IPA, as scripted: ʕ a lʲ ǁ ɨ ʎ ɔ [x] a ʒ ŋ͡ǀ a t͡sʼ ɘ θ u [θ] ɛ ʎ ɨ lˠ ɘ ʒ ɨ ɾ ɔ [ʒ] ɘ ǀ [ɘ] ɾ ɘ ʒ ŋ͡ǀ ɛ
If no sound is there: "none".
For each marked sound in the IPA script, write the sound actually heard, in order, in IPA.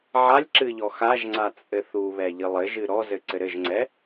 x, β, z, ɘ

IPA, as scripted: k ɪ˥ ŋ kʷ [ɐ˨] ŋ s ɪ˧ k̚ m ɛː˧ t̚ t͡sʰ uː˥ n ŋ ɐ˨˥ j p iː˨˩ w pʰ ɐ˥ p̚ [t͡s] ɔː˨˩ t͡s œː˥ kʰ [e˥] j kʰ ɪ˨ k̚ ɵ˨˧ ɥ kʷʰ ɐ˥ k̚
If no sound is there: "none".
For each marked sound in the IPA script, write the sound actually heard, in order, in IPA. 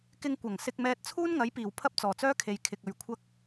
ɐ˨˩, t͡s, e˨

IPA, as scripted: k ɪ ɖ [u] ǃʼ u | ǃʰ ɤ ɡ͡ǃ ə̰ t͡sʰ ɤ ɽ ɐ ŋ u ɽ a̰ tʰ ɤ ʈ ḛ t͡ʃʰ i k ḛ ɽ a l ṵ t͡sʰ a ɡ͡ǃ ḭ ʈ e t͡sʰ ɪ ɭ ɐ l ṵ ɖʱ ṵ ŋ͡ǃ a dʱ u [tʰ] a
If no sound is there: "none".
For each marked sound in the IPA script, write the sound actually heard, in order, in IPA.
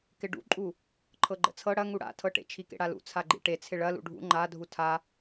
ṵ, tʰ

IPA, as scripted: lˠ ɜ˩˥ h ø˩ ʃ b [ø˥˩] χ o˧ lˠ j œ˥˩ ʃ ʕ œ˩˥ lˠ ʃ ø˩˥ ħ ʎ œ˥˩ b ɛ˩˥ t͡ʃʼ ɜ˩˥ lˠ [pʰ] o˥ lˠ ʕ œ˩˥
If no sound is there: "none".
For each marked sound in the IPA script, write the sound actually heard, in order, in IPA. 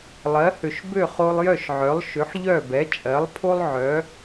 ø˥˩, pʰ

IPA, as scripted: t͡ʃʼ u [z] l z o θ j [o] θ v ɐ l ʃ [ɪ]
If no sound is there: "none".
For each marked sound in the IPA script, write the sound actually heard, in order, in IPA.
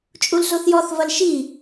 none, ɔ, i

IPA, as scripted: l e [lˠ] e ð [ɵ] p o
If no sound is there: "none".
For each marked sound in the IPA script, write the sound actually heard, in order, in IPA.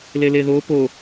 l, o

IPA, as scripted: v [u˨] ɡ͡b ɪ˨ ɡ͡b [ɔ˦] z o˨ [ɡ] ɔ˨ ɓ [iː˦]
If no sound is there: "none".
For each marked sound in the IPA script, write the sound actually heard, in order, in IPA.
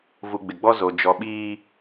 u˨, ɔ˦, d͡ʒ, iː˦

